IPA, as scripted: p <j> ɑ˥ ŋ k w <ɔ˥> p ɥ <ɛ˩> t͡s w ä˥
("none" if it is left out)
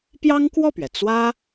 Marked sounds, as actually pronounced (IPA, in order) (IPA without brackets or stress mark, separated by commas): j, ɔ˥˩, ɛ˩